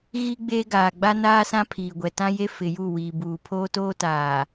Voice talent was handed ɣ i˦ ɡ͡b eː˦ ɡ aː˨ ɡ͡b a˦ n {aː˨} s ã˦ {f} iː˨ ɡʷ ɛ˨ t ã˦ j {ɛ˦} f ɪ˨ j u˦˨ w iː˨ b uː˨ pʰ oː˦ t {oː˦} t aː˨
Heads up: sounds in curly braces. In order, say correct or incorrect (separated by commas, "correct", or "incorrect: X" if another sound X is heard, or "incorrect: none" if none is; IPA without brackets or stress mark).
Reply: incorrect: aː˦, incorrect: pʰ, incorrect: e˦, correct